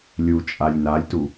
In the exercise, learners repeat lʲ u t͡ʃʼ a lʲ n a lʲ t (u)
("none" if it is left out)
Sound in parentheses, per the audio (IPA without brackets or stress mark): u